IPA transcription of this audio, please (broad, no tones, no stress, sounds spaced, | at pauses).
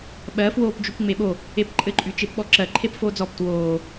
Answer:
ɓ ɜ f w oː p d͡ʒ y p ŋ͡m e ɓ o | e p ǃʼ ɘ ǃʼ y t͡ʃ e p ɓ ɔ ǁ ɜ ǃʰ e p f oː d͡z ɔ p t w oː